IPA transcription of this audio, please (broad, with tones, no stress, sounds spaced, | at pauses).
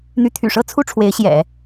n̪ y˧˥ t̪ʰ y̰˨˩ ʂ ɤ˥ t͡sʰ u˥ ʈ͡ʂʰ w e˧˥ ɪ̯ ɕ j ɛ̰˨˩˦